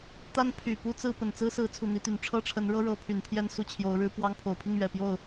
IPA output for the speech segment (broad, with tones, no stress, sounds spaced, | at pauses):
t̪ a˥ n pʰ y˨˩ p u˥ t͡s ɹ̩˥˩ p ə˨˩ n t͡s ɹ̩˥ s ɹ̩˧˥ t͡sʰ u˨˩ n̪ i˧˥ t̪ y˨˩ n ʈ͡ʂʰ ɤ˥ ʈ͡ʂʰ ə˧˥ n ɻ ɤ˥ ɻ ɤ˧˥ pʰ y˨˩ n pʰ j ɛ˥˧ n s u˥˩ t͡ɕʰ j o˧˥ ʊ̯ ɻ ɻ̩˥ p w ɑ˥ ŋ pʰ o˨˩ ʊ̯ pʰ i˥˩ ŋ ɥ ɛ˨˩ p j o˥˩ ʊ̯